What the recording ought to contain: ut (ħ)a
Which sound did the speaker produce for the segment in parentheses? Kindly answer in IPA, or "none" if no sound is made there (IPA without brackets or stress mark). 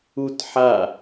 ħ